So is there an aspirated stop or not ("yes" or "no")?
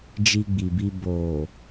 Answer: no